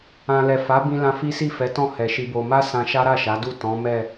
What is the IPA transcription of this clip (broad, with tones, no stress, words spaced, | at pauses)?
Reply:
ã˨lɛ˨fa˨˦ bĩ˧lã˧ fi˦si˦˨fɛ˨˦tɔ̃˦˨ hɛ˨ʃi˧bo˧ ma˦ sã˧ʃa˦ ɾa˦˨ʃa˨˦du˦˨ tɔ̃˨˦mɛ˦˨